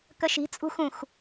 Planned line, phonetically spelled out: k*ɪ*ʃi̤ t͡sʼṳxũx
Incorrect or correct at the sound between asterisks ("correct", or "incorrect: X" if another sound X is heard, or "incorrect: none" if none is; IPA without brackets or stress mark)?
incorrect: ə